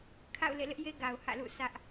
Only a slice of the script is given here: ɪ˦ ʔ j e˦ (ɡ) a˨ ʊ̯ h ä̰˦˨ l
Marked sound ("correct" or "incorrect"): correct